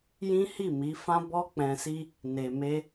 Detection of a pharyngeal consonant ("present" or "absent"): absent